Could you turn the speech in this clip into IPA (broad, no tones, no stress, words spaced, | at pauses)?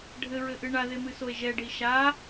ɖʱɘɹɘʔɨ ɳaðemɨsoe̯ ʒɛɖi ʃa